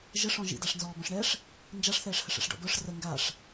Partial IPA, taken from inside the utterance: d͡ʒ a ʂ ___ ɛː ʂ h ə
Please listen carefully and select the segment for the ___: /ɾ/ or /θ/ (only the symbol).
θ